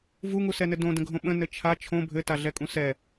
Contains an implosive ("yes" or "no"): yes